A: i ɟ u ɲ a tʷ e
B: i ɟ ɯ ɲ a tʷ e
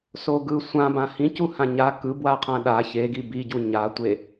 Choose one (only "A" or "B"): A